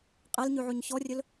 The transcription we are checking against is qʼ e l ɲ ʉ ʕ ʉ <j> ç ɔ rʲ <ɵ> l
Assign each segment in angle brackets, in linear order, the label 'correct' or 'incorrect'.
incorrect, correct

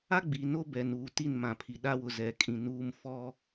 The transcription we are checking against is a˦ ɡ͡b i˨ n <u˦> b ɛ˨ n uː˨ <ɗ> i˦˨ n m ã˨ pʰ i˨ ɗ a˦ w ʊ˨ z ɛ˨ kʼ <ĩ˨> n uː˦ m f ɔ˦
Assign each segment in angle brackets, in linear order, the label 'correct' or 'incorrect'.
incorrect, incorrect, correct

